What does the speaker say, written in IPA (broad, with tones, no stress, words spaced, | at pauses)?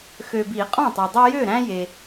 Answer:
xø˨bi˨˩˦ qʼɔ̃˥˩tˤø˨dˤi˦ jø˥˩ɾæ̃˦ je˨